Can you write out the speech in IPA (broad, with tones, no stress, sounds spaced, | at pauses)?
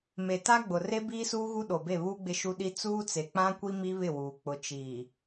m e˨ t a˦ ɡ͡b ʊ˨ r e˦ b iː˦ s uː˦ ɣ u˦ ɗ o˨ b e˦˨ β uː˦ ɡ͡b ɪ˦ ʃ u˦ ɗ i˦ t͡s uː˦ t͡s e˨ k͡p ã˦ kʷ i˦ m i˦ β ɪ˦˨ w uː˨ k͡p ʊ˨ t͡ʃ iː˨